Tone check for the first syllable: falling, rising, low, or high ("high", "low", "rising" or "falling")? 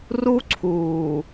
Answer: high